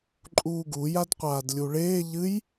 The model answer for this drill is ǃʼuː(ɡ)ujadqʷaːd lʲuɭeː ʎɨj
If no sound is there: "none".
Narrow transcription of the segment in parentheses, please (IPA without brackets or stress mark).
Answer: ɡ